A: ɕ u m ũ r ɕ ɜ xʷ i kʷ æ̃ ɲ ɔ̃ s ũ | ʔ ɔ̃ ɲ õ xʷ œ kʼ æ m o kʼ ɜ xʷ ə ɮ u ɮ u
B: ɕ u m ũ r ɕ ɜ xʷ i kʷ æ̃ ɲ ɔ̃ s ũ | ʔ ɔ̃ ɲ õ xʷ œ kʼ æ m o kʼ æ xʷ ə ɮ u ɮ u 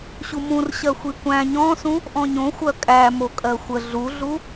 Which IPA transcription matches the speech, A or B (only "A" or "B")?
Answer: A